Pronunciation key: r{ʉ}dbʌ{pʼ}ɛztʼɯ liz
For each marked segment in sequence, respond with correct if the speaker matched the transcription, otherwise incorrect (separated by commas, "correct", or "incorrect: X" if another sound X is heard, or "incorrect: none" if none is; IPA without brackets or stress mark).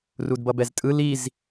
incorrect: u, incorrect: b